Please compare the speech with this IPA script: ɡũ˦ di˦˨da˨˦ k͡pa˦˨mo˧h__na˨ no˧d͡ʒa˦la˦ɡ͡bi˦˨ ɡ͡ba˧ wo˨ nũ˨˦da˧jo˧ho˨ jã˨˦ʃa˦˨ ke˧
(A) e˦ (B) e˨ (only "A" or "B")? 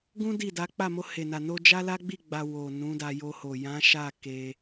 B